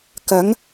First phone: k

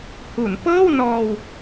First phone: h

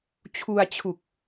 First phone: t͡ɕʰ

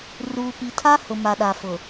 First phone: r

